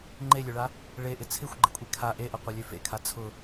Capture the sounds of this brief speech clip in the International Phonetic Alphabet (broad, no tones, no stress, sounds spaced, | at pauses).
ŋ͡ǃ e lʲ ø ɭ a | ɭ e ʔ ɪ t͡sʰ ɪ xʷ ɡ͡ǃ ɪ kʷʼ e kʰ a ʔ e ʔ ɐ qʷ ɐ lʲ ø f ḛ kʰ a t͡sʰ ʊ